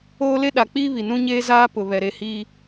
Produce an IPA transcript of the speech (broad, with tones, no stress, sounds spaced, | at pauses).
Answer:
oː˦ l e˦ ɗ a˨ k͡p iː˦ β i˨ n ũ˦ ɲ eː˦ z aː˦ p ʊ˨ β ɛ˨ ɾ e˦˨ h iː˦